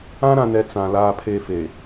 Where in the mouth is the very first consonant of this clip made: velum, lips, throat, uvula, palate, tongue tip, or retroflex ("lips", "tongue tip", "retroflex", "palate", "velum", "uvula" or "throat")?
tongue tip